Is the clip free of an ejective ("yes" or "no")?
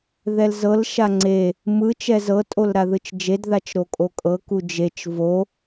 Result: no